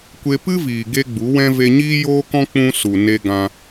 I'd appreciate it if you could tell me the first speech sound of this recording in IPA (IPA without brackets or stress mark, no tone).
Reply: kʷ